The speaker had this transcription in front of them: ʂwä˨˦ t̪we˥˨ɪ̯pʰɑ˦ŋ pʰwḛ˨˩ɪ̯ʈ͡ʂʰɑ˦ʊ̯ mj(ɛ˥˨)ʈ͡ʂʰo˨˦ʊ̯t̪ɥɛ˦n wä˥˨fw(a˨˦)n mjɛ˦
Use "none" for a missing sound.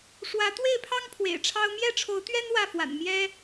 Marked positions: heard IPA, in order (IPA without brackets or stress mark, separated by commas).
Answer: ɛ˥˨, a̰˨˩